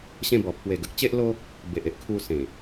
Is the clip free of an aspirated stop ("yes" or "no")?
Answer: no